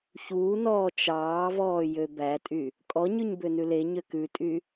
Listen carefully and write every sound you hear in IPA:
ç uː n ɔː t͡ʃ ɑː v ɔː j ø b æ tʼ y | kʼ ɔ ɲ ʉ ɲ b ø n ʉ l e ɲ ø k ʉ tʼ y

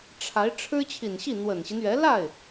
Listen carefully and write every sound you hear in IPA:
ʈ͡ʂʰ a˧˥ ɪ̯ ʈ͡ʂʰ ɻ̩˥ t͡ɕʰ i˨˩ n ɕ i˥˩ n̪ w ə˨˩ n ɕ i˦ n ɥ ɛ˧˥ l a˥˩ ɪ̯

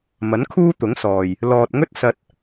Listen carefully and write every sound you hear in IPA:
m ɐ˨˥ n kʰ uː˥ t̪ ʊ˨˥ ŋ s ɔː˨ j | l ɔː˨ t̚ ŋ ɵ˥ t̚ s ɐ˧ t̚

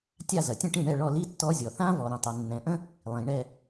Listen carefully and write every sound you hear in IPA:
tʲ a˦˨ z ɐ˩ tʲ ə̃˦˨ ʈ ĩ˦˨ ɳ ɛ˦˨ ɭ ɔ˦˨ l i˦˥ tː ɔ˦˥ zʲ ɔ˩ θ ã˦˥ v ɔ˩ ɾ ə̃˩ tˤ ɐ˩ nː ɛ̃˩ ʔ ə̃˦˥ | lˠ ĩ˩ ɳ ɛ˦˨

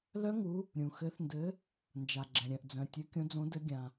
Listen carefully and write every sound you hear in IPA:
l œ˦˥ ŋ u˨˦ | ɾʲ ũ˩ x ɘ˨˦ θ n d ɘ˨˦ | n d͡ʒ a˩ ɡ͡ǁ ɛ̃˩ ɾʲ œ̃˩ ʔ d͡z œ̃˩ tʲ ɘ˨˦ kʲ õ˨˦ d͡z õ˨˦ d ɘ˨˦ ɡʲ ã˩

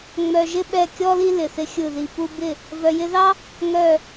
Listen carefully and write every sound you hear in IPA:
ŋ͡m œ˨ ʒ ɪ˦ ɓ ɛ˦˨ kʲ ɔ˦ l i˦ l ɪ˨ θ ɪ˦ xʲ ɯ˦˨ ð i˧ p u˧ b ɪ˦˨ | v œ˨ j ɪ˧ ð ɑ˦ | ŋ œ˦˨

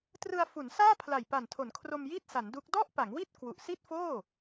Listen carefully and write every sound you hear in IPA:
t r ɯ˧ a̯ f u˩˦ n s aː˥˩ pʰ l a˨˩ j p a˨˩ n tʰ o˩˦ n kʰ r o˧ m j i˥˩ t̚ s a˩˦ n d u˦˥ k̚ d ɔ˥˩ ʔ p a˩˦ ŋ w i˥˩ t̚ k w u˨˩ ʔ s i˥˩ t̚ f oː˥˩

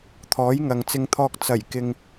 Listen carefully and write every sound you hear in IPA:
t̪ʰ ɔː˨˥ j ŋ ɐ˨ ŋ t͡s ɪ˧ ŋ t̪ʰ ɔː˧ k̚ t͡s ɐ˨˩ j k ɪ˨ ŋ

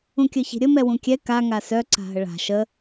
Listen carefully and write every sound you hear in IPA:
ũ kʲ œ ç i̤ ɾʲ ə m ɛ w ũ kʲ ɛ k a ŋ a s œ ǀ a̤ ɦ ə ɭ a̤ ʃ ə

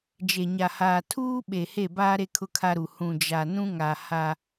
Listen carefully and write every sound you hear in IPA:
d͡ʒ e˨ ɲ a˨ h aː˨ tʰ uː˦ ɓ e˨ h e˦˨ b aː˦ ɾ e˦ kʰ ʊ˦ kʰ a˦ ɾ u˨ h ũ˨ d͡ʒ a˨ n ũ˦ ŋ a˨ h a˦

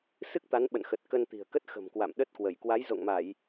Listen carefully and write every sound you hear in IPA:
s ɨ˦˥ k̚ t̪ a˨˦ n ɓ ə̰˧˨ n x ə˨˩ t̚ k ə˧ n t̪ i̤˨˩ ə̯ k ə˦˥ t̚ x ə̤˨˩ m k w a̰˧˨ m ɗ ə˦˥ t̚ k w ə˧˩ j k w a˨˦ j z o̰˧˨ ŋ m a˧˩˨ j

